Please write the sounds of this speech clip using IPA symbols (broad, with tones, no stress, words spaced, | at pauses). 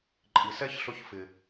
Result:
ǃʼi˨sɛ˦çɬʊ˧ç fɪ˨